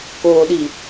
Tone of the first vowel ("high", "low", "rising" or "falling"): low